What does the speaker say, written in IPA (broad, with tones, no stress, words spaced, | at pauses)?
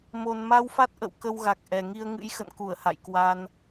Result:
mo˨˩nma˧wfa˦˥t̚ʔə̰˧˨w kə˧wɣa˨˩k̚ʔɛ˨˩ŋi˧ə̯ ŋɨ̰˧˥jxə̰˧˨nku˧˩ə̯ ha̰˧˨jkwa˧n